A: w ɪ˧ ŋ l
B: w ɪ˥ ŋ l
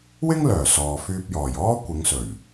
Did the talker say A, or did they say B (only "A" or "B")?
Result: B